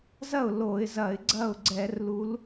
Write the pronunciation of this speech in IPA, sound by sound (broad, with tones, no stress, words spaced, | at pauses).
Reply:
zɐ˥˩ʊ̯ lo˧˩˧ɪ̯zɐ˧˩˧ɪ̯ ɡ͡ǀɐ˥˩ʊ̯ɡ͡ǀɛ˧˩˧rlu˨˦l